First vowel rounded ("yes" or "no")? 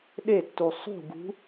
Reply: no